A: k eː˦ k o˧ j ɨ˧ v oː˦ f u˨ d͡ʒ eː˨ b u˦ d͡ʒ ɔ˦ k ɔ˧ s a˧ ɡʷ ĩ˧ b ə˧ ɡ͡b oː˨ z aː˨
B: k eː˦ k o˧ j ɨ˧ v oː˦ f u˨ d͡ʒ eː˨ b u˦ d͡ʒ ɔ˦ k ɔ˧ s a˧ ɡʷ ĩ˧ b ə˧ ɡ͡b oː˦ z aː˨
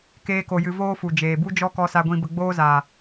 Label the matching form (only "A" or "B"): B